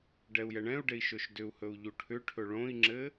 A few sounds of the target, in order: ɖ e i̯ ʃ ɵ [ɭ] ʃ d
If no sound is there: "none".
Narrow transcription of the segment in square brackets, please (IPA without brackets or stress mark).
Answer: none